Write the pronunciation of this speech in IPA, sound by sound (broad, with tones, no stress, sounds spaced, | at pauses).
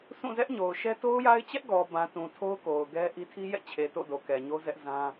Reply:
sʰ ũ˦˨ z ɛ˦ ʔ ɲ o˨ ʊ̯ ʃ ɛ˦ t o˦ ʊ̯ j a˦ ɪ̯ t͡ɕ ɛ˦ ʔ ɡ ɔ˨ b ã˨ t ũ˨ tʰ o˦ ʊ̯ k o˨ ʊ̯ ɡ ɛ˦ ʔ i˦ tʰ i˦ j ɛ̰˦˨ t͡ɕʰ e˨ t o̰˦˨ d o˨ k ɛ˨ ɲ o˦ z ɛ˦ ʔ z ã˦